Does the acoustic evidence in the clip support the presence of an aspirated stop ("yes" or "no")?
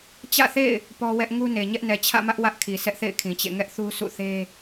yes